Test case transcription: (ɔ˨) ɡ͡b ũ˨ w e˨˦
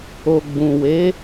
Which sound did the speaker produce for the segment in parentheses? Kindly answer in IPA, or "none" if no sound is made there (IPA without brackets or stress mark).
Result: o˨